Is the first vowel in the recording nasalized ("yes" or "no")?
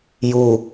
no